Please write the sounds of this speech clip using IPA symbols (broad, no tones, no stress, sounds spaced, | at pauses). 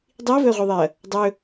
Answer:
dˤ i ɐ̯ v ɵ ɐ̯ ʁʷ i ðˤ e ɐ̯ | dˤ ɵ